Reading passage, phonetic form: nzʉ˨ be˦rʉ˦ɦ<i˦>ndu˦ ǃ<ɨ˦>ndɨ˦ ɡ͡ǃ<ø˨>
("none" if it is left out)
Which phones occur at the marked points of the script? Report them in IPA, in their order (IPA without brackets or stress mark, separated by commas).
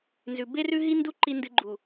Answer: i˦, i˦, u˨